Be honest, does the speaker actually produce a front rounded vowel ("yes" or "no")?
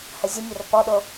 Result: yes